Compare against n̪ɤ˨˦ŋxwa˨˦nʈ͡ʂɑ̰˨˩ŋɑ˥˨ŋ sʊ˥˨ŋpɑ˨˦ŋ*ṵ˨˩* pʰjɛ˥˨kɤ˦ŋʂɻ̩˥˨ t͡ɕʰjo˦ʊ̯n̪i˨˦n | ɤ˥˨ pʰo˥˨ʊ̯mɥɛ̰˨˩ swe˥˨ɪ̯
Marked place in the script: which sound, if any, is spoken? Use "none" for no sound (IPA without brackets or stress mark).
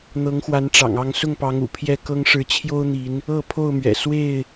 ṵ˨˩